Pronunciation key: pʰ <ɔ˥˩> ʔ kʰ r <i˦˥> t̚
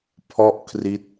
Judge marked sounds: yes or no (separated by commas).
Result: yes, yes